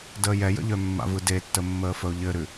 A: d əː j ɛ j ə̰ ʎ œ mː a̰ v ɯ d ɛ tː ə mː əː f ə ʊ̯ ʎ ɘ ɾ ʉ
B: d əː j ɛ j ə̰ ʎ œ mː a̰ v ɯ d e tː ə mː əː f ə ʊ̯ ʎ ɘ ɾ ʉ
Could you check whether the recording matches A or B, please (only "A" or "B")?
B